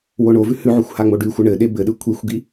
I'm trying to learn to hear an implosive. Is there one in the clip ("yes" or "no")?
yes